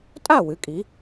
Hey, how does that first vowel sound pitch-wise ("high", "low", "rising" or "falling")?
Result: falling